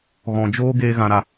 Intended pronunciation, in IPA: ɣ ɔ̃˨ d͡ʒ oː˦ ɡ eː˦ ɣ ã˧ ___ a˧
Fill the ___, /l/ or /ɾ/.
ɾ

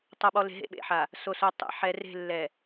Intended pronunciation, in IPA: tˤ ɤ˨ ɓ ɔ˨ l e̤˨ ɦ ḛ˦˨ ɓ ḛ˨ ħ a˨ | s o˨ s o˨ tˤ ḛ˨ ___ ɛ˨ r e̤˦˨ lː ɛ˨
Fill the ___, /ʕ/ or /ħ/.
ħ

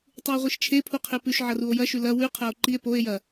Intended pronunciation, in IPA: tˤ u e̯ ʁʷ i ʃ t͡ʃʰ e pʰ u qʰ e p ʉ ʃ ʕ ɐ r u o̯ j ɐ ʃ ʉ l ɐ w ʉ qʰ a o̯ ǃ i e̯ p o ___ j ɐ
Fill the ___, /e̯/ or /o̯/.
e̯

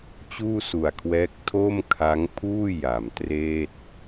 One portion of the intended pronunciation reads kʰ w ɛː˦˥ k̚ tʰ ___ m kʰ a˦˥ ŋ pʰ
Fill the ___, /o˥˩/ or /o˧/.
o˥˩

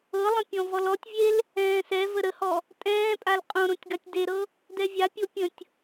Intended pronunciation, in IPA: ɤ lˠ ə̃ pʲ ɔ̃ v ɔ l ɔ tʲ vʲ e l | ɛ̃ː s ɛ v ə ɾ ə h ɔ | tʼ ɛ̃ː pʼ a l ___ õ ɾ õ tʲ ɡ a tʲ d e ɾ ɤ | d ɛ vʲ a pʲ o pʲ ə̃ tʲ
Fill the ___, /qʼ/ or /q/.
qʼ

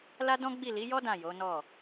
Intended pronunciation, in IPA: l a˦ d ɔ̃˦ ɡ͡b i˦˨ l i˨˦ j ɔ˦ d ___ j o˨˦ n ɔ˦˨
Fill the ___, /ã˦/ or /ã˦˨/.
ã˦˨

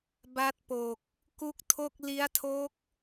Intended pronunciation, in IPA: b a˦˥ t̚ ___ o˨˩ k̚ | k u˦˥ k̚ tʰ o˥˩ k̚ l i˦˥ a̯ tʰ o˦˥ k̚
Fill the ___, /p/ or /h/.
p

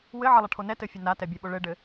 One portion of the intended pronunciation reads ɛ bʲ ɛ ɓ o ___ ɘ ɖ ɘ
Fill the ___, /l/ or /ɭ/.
ɭ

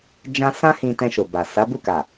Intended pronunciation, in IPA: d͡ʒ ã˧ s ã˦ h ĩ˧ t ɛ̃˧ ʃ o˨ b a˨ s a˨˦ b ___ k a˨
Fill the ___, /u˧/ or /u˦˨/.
u˦˨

